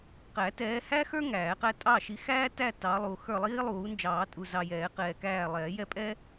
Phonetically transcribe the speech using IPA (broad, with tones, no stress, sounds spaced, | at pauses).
q æ˨˩˦ t ɛː˨˦ h æ˥ x ə˞˥ ŋ æː˨˩˦ q æ˥ tʼ ɑ˦˨ ʃ i˨˦ x æː˥ t æ˦˨ t ɑ˨˦ lˠ u˨ x ə˞˦˨ lˠ iː˥ lˠ uː˨˩˦ n d͡ʒ ɑː˨˩˦ tʼ u˨ z ɑ˨ j ɛː˨˩˦ q ɛː˨ k æː˦˨ lˠ ɛː˨˩˦ j ɛ˥ pʼ ɛ˥